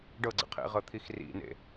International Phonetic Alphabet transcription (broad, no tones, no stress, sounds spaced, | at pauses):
ɖ ɤ ɡ͡ǀ ə̰ qʰ ḛ ʁ ɤ t̪ʰ i x r ḭ n ḛ